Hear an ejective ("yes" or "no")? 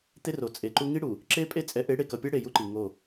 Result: yes